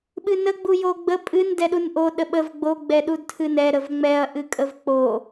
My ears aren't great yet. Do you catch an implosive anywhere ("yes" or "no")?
yes